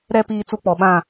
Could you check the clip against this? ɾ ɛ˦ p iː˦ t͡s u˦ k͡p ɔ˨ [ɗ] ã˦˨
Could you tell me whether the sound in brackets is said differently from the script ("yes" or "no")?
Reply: yes